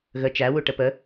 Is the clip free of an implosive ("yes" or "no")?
yes